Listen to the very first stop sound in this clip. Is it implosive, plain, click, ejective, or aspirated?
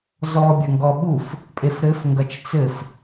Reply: plain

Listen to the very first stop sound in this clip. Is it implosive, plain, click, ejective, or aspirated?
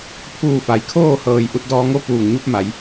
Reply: aspirated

